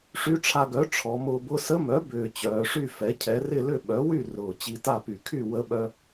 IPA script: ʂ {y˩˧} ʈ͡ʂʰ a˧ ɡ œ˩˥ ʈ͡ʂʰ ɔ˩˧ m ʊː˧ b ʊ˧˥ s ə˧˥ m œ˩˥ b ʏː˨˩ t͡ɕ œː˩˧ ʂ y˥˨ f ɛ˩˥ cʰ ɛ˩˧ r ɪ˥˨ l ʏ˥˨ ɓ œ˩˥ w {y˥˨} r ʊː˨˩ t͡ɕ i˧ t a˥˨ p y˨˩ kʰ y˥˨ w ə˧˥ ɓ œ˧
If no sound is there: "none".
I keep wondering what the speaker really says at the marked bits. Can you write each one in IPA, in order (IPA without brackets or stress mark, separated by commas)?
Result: y˧˥, y˥˨